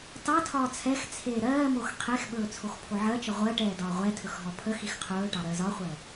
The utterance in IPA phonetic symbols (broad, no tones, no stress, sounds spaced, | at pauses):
t ɑ tʰ ɒː t͡sʰ ɛ x t͡sʰ eː ɾ ɜː m o x qʰ e x ɓ ɵː t͡sʰ o x pʰ o ʕ ɜ t͡ʃ ə ʁʷ ɜ ʈ ɛː d ɒː ʁʷ ɛ tʰ ɵ x ɦ ɔ pʰ ə x i x qʰ ɵː ʈ ɑ ɾ ɜ z ɒ χʷ ɜ